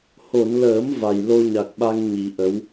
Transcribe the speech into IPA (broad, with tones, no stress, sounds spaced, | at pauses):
h o˨˩˨ n l əː˨˩˦ m v a˨˩ j l o˧ ɲ a˨˩ k̚ ɓ a˧ ŋ ɲ i˨˩˦ ʔ ə˧˥ w